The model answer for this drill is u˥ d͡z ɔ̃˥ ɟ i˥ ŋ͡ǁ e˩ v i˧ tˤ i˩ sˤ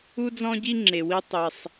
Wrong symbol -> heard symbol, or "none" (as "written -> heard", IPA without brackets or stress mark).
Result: v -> w